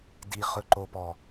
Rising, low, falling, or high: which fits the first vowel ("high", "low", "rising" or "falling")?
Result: low